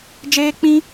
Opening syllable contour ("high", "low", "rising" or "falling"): high